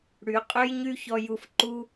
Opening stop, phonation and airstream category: ejective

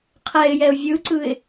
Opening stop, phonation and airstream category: aspirated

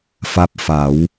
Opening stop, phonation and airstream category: plain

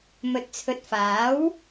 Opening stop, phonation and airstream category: plain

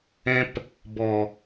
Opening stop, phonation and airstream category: plain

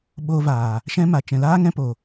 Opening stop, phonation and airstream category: implosive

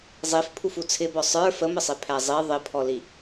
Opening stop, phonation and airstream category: aspirated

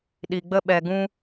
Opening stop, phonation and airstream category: implosive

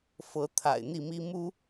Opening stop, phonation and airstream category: aspirated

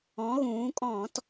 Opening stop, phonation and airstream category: ejective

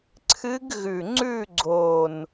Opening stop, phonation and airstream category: click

